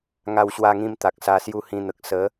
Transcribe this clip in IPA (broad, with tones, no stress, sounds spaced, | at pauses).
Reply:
ŋ a˧ w ɕ w a˧ ŋ ĩ˧ m t̪ a˨ k̚ s a˧ s j u˦ h ĩ˧ n̪ ə˨ k̚ s ə˨˦